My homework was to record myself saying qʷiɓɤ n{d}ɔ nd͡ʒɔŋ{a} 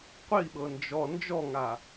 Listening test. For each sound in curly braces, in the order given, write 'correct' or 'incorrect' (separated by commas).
incorrect, correct